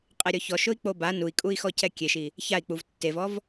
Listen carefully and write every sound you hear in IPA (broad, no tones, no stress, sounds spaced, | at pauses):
qʼ ɛ ɾʲ ɔ ç ɔ ʃ ʊ i̯ k͡p o b a n u i̯ kʼ u i̯ x ɔ c ɛ kʲ e ʃ i | ç a i̯ k͡p u v tː e v ɔ v